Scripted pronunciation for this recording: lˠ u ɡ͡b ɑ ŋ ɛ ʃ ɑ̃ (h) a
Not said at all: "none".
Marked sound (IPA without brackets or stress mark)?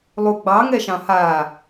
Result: h